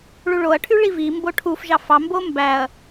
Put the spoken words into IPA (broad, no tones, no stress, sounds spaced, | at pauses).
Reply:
ɭ u ɭ o ɐ̯ ʈʰ y ɭ i v i m b o ʈʰ u f ʒ ɑ f ɑ m b o m b æ ɐ̯